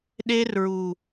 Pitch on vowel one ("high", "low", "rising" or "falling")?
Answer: high